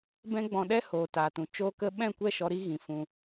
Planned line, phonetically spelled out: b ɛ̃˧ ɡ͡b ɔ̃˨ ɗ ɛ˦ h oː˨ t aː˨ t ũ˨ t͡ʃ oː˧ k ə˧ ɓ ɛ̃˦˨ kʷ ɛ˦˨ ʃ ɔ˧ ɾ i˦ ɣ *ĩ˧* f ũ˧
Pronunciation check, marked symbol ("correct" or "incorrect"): incorrect